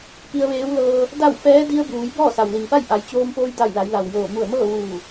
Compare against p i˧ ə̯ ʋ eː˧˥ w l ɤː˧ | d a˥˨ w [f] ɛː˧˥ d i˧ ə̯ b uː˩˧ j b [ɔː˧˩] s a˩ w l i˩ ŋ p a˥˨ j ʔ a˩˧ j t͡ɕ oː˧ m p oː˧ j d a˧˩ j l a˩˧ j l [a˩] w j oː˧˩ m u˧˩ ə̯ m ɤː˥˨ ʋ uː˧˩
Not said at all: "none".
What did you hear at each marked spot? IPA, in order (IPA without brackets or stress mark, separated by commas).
f, ɔː˥˨, a˩